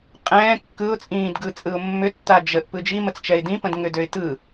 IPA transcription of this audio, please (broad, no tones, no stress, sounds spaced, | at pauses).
qʼ ɛ̃ː kː ɯ ʊ̯ t͡sʼ ĩː d ɡ ɯ t͡sʼ ɯ ʊ̯ mː ʏ tː a d͡ʒ ə ʔ p ɯ d͡ʒ i m ə t͡s t͡ʃ ɛ ɪ̯ d ĩ p ə̃ d ŋ ʏ d ø ɪ̯ t ɯ